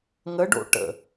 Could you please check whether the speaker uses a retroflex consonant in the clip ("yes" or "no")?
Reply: yes